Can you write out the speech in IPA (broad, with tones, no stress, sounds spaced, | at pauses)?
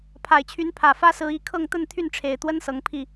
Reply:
pʰ a˨˩ ɪ̯ t͡ɕʰ y˨˦ n pʰ ä˨˩ f ä˦ s ɹ̩˨˦ i˨˦ kʰ ɤ˥˨ ŋ t̪ ə˥˨ n t̪ʰ y˥˨ n ʈ͡ʂʰ e˨˩ ɪ̯ t̪ w ə˦ n s ɤ˨˦ ŋ pʰ i˥˨